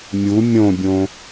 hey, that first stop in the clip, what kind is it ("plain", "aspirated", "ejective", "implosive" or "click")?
plain